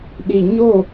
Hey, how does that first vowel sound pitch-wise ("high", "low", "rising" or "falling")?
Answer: low